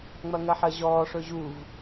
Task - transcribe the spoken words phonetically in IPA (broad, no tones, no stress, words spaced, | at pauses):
ŋ͡mɐŋɐħɜʑɔː ʂɵʑuv